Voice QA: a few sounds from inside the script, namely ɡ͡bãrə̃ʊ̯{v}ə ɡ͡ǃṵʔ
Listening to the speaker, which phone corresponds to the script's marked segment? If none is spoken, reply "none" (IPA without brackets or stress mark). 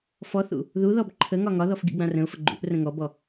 f